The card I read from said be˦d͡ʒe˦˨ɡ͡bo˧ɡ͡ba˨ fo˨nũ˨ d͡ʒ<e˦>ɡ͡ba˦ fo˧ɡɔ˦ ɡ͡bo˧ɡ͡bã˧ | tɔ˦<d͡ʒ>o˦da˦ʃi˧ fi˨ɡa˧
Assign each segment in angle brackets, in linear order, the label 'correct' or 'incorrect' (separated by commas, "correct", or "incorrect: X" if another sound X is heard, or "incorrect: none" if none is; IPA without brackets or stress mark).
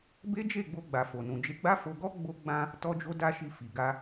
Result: incorrect: e˧, correct